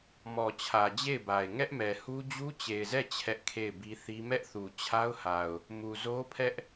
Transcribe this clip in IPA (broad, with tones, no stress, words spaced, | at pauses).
mɔ˨t͡ɕʰä˨d͡ʑe˦˨ɪ̯ba˨ɪ̯ ŋɛ˦ʔmɛ˨hu˦ d͡ʑu˦t͡ɕe˨ɪ̯zɛ˦˨ t͡ɕʰɛ˦ʔkʰe˦˨ɪ̯bi˦θi˦ mɛ˦ʔθu˨ t͡ɕʰa˦ʊ̯ha˨ʊ̯ | mu˨zo˦pʰɛ˦ʔ